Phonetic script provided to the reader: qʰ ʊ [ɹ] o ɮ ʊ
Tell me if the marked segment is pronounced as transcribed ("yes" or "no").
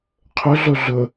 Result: no